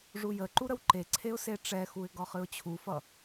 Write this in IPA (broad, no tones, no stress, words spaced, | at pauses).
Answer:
ʐujəǃu ɾəwǃeǀʰeʊ̯ seʈ͡ʂɛxuɪ̯ ɡɒχɨʊ̯t͡ɕʰufʌ